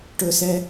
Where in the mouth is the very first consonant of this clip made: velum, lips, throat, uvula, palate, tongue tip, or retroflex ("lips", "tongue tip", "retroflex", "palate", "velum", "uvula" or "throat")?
retroflex